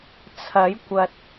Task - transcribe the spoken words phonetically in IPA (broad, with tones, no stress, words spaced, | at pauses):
t͡sʰɐ˨˥jkʷɐ˨t̚